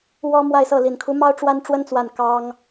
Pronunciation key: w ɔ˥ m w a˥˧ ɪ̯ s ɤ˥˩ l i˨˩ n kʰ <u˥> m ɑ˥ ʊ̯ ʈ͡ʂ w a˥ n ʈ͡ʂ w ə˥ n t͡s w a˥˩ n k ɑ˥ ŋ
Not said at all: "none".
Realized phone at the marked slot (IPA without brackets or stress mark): u˧˥